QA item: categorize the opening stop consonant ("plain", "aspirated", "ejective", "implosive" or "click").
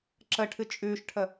click